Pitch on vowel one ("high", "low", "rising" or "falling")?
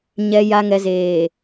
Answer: low